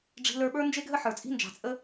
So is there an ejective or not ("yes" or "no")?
yes